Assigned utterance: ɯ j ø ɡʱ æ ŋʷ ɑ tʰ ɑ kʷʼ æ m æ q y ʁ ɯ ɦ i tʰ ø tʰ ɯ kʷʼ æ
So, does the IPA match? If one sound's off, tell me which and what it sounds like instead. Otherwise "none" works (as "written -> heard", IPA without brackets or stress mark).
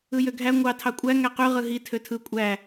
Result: m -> ŋ